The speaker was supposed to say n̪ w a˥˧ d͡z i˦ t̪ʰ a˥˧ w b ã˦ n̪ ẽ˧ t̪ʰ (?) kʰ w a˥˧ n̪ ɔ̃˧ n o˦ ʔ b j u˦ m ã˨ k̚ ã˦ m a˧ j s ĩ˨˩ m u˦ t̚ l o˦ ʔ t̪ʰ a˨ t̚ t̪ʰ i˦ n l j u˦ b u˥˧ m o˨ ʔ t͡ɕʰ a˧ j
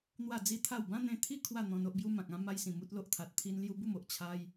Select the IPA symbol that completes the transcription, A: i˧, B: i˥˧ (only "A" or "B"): B